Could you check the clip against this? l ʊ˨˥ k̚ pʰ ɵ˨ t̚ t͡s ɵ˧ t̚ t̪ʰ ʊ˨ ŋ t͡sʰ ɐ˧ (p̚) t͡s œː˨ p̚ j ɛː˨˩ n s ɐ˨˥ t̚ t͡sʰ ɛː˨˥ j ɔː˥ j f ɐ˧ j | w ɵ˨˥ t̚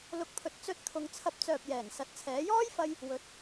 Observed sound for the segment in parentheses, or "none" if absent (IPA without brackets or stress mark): p̚